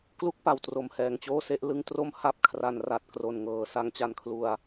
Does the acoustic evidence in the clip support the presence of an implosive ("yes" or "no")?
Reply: no